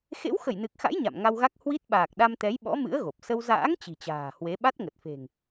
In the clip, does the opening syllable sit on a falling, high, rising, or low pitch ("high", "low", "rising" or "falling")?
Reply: rising